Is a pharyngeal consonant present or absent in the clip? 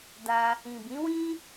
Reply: absent